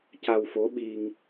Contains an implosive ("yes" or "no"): yes